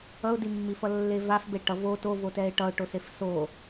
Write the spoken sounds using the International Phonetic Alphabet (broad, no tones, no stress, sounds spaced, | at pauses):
ʌ ʊ̯ d i mː i f ʌ lː e v a f b e ʈ ʌ v o t o v o t ɛ ɪ̯ ʈ ʌ ʊ̯ ʈ o s e f s o